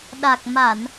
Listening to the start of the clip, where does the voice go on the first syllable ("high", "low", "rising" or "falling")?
low